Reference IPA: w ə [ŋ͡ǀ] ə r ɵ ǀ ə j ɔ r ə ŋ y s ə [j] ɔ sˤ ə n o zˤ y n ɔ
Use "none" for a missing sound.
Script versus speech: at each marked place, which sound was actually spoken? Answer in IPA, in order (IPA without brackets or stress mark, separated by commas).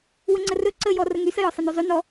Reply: ŋ͡ǀ, j